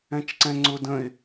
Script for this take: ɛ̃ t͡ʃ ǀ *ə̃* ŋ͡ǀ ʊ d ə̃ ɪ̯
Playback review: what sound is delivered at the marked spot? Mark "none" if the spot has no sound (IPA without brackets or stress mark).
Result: ɛ̃